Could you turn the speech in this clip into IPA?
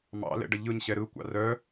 mɑ̰lɛ̰ɖə ʎɯɲɕɛ ɾɯkʷɑ̰ rœ

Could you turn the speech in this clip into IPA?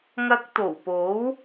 ŋɐ˧k̚t̪o˨˩wpo˨˥w

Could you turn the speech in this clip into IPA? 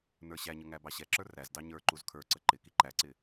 nə˞ɕæɲə ŋæbɑɕɛǁə˞ ræzdɑ ɲə˞ ǃuzkʰə˞ǀə ǃɪ kiǃæǀɪ

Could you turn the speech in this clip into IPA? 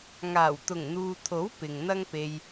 ŋaː˨˩wt̪ʊ˨˩ŋn̪uː˨t̪ʰo˨˥w pɪ˨ŋn̪ɐ˥ŋpe˧j

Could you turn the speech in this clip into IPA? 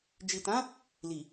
d͡ʒi˨tã˨˦ | li˨

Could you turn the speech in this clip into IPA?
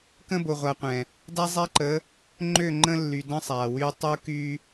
kə̃˦ bo˨ʁʷa˨qʷɛ̃˨ | da˦zˤɛ˦ǃə˨˦ | ŋ͡ǃø˦˨ŋ͡ǃə̃˦lːy˨də̃˦ sˤa˨wy˦ tˤu˦ky˦

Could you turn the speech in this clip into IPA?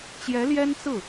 t͡ɕjɛ˧˥ljɛ˥nt͡sɹ̩˥˩

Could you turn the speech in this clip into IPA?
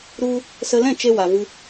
ɾu˧ | sə˧lɛ̃˦˨ t͡ʃe˧wa˨vɨ˧

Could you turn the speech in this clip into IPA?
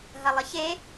ɦɐlˠəçe

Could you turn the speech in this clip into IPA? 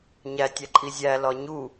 ɲæ tʲæǃʼizʲæ lɒɲu

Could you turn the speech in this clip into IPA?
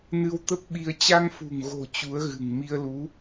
nɨ˧wt̪ə˦˥p̚ɓi˧ə̯ t͡ɕa˧ŋfṳ˨˩ŋɣo̤˨˩ t͡ɕu˨˦ə̯ɣɨ̤˨˩ŋ mi˧ə̯lu˨˦

